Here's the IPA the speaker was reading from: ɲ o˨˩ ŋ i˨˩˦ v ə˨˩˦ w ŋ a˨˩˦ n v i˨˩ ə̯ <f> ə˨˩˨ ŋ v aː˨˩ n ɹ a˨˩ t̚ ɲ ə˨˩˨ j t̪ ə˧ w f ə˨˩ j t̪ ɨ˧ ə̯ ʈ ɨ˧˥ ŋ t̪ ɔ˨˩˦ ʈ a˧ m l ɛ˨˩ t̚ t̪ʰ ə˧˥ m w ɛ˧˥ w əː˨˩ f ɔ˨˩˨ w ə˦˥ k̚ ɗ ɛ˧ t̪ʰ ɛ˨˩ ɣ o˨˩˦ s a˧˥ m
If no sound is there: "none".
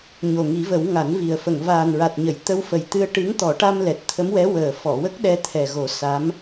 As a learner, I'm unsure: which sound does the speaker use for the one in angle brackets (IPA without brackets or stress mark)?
f